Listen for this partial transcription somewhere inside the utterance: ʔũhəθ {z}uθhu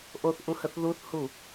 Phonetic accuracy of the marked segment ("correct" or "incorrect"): incorrect